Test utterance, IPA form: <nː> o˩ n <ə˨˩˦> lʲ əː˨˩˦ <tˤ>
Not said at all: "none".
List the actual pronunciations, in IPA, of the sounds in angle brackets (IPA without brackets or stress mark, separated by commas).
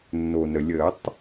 nː, ə˩, tˤ